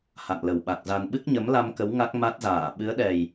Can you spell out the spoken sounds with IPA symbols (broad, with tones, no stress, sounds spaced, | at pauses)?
h a̰˧˨ ŋ l ə˨˩ w ɓ a˨˩ k̚ z a˧ n ɓ ɨ˦˥ k̚ ɲ ə˨˦ m l a˧ m k ə˨˦ w ŋ a˦˥ k̚ m a˦˥ t̚ z aː˧˩ ɓ ɨ˨˦ ə̯ ɗ ɛ˨˩ j